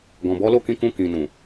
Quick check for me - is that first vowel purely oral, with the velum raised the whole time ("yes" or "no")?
no